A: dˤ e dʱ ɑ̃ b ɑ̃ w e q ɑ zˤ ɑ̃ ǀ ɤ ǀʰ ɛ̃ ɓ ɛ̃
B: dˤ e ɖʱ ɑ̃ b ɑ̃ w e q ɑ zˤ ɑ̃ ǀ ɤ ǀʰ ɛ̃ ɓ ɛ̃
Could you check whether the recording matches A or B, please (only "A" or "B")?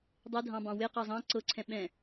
A